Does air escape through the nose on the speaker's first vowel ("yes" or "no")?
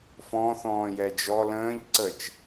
yes